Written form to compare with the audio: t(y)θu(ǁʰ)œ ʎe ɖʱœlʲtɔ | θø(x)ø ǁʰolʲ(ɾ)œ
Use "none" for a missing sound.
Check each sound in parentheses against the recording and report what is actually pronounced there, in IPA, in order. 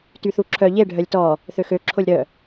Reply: y, ǁʰ, x, ɾ

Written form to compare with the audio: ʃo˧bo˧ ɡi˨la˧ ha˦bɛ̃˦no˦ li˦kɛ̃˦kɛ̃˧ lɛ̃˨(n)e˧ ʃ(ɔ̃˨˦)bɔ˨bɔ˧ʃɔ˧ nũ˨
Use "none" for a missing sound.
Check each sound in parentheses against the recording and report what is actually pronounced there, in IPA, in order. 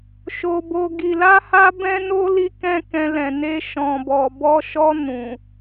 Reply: n, ɔ̃˨

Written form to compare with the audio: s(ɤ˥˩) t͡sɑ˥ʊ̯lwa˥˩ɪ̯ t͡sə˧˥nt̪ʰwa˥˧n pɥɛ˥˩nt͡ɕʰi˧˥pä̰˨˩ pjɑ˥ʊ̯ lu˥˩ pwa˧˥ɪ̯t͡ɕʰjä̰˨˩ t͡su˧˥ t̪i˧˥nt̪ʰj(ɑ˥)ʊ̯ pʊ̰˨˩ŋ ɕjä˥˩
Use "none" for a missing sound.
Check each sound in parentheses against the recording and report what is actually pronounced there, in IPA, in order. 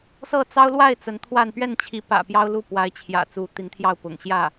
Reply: ɤ˥˩, ɑ˥˩

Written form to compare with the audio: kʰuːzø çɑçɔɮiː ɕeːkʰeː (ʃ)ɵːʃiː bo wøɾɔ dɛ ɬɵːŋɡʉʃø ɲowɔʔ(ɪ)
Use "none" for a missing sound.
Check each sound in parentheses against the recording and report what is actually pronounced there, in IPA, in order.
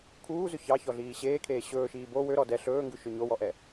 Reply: ɕ, ɛ

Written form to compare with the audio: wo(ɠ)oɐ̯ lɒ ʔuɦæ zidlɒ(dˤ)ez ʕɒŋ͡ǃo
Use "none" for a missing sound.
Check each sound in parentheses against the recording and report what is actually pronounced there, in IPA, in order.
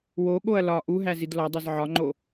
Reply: ɠ, dˤ

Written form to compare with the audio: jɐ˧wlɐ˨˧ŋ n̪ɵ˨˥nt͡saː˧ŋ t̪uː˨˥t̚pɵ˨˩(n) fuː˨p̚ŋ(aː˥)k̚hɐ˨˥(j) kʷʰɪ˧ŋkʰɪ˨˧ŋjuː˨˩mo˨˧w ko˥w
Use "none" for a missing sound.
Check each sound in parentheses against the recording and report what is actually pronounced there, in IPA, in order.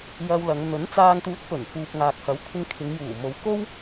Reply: n, aː˨, w

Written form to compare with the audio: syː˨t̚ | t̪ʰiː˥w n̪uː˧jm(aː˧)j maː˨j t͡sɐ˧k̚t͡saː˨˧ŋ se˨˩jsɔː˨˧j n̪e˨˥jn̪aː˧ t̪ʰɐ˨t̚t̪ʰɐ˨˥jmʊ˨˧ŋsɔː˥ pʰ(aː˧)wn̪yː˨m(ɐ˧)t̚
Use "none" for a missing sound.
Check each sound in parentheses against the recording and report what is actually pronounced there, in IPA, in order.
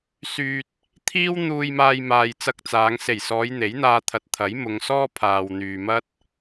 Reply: aː˧, aː˨, ɐ˥

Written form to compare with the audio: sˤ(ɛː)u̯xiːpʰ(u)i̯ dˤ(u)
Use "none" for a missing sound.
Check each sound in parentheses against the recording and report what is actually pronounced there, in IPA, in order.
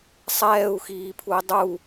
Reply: ɛː, u, u

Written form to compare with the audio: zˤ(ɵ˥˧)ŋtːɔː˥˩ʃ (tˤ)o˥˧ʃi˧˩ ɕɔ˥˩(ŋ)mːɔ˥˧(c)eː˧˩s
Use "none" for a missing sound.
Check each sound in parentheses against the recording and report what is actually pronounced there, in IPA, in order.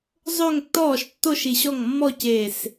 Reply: ɵ˥˧, tː, ŋ, c

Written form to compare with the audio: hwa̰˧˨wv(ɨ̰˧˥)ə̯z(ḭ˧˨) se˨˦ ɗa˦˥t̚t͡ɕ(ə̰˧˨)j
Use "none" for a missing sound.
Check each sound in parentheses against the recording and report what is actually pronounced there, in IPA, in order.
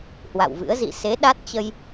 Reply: ɨ̰˧˥, ḭ˧˨, ə˧

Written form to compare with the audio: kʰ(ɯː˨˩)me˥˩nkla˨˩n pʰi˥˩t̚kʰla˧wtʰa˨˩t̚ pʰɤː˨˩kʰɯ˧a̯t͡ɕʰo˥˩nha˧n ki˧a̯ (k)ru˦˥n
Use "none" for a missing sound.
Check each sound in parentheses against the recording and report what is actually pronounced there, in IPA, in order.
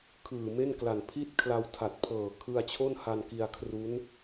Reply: ɯː˨˩, kʰ

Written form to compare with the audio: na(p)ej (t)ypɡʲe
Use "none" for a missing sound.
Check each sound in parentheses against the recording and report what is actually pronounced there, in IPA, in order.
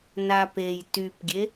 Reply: p, t

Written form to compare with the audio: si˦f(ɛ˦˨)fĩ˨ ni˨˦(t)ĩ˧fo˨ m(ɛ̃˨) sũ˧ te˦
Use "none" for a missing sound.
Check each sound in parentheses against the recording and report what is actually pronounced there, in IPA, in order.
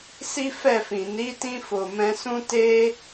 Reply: ɛ˦˨, t, ɛ̃˧

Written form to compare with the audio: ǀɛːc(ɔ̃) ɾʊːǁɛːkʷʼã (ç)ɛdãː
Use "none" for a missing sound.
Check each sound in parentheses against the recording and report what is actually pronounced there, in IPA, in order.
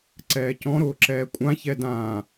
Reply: ɔ̃, ç

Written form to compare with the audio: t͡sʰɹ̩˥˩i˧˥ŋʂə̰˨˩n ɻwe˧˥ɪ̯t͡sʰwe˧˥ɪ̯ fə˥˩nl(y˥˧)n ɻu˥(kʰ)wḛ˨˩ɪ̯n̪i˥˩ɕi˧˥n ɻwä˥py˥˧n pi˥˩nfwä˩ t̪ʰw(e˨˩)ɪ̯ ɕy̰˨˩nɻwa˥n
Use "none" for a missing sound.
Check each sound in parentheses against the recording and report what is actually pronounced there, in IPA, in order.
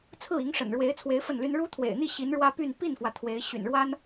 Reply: y˥, t̪ʰ, e˧˥

